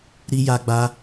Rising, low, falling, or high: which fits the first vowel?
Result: high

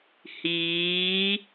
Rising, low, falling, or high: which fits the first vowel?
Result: rising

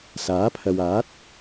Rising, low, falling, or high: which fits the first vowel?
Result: rising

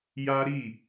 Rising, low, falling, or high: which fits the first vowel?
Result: high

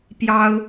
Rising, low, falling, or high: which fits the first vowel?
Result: high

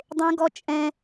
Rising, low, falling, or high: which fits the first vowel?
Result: high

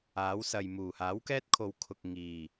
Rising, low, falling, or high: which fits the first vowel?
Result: rising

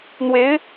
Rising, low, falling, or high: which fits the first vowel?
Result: rising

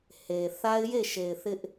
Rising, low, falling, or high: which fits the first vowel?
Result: low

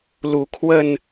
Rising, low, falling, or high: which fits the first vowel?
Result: rising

